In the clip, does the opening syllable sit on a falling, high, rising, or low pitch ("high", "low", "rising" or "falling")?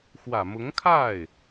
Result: low